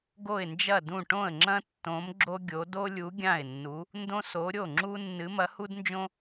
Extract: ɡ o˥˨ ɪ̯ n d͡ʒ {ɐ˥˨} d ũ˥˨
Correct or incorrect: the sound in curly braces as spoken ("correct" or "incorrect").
correct